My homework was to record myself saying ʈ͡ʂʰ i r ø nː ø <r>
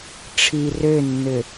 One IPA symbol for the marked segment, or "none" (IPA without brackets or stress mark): none